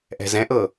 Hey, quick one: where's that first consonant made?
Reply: throat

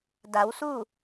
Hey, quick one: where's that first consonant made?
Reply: tongue tip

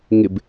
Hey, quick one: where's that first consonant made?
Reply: velum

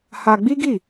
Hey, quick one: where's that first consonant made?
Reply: throat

